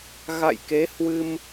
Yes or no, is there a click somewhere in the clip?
no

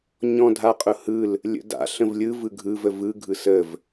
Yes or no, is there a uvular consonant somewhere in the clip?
yes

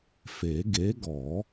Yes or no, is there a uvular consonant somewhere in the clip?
no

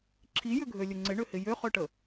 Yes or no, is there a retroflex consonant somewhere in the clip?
yes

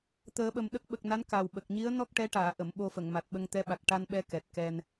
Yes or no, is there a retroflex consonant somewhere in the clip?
yes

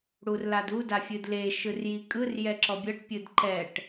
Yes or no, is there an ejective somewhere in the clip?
yes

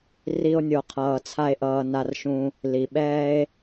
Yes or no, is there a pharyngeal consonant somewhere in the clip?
no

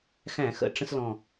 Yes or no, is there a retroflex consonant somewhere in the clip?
yes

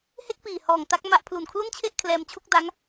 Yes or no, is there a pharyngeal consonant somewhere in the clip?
no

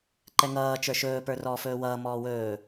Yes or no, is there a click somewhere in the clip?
yes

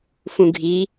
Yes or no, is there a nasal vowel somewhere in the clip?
yes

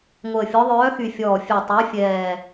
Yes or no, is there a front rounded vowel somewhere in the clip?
yes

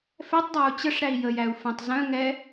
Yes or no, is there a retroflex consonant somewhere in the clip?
yes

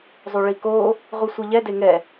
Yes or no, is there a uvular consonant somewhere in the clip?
yes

